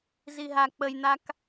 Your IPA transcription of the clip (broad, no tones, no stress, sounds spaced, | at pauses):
z i ɦ a k͡p ə j n̪ a k